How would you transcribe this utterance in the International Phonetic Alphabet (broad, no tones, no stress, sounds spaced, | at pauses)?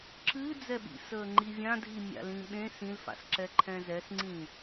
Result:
ǁ ɨː d͡z ɛ ɓ ḭ s əː ŋ͡ǃ i vʲ ã dʱ i mʲ a̰ l ĩ ɓ ẽ s ĩ l f a̰ s ǁ ɛ ǃʰ ɛ̃ z ɛ s ŋ͡ǀ ĩ